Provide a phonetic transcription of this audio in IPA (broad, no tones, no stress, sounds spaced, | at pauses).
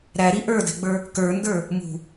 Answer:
ɾ æ ɾ i ʔ ə˞ d ɛ̤ ɡ͡b ə˞ | k ə˞ n d ə˞ | m ṳ